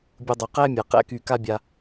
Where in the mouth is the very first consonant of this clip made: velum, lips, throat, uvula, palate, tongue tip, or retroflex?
lips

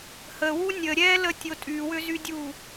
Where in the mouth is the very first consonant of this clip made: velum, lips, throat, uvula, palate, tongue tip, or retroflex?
throat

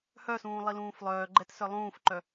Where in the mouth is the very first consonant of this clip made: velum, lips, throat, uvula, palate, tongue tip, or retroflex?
throat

